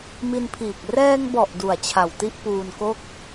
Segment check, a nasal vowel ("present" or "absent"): absent